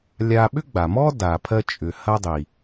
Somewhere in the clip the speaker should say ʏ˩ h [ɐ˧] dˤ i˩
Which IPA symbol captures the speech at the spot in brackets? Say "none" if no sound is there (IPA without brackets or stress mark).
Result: ɐ˧